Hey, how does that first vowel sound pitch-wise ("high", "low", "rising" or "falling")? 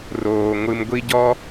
low